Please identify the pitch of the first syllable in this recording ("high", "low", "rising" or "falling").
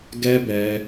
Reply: high